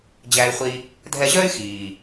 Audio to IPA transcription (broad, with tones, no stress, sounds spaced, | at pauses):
d͡ʑ æ˧ y̯ χʷ i˧ | dʱ ɛ˧ ʑ œ˥ y̯ x iː˩